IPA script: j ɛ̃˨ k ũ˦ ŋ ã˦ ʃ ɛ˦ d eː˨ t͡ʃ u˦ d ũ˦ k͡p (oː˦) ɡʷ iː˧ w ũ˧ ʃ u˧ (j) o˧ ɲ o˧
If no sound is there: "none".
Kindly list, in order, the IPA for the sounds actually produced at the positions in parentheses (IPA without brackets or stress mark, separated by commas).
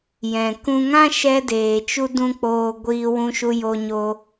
oː˧, j